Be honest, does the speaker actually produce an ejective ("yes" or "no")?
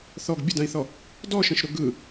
no